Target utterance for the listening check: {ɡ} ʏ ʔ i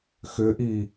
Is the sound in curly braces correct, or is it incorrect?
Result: incorrect